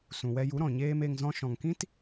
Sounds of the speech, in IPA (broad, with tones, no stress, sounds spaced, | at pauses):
s ũ˨ w ɛ˧ j u˨˦ ɾ ɔ̃˨ ɲ eː˦ m e˧ ŋ z ɔ̃˦ ʃ ɔ̃˨ ŋ k ĩ˦ t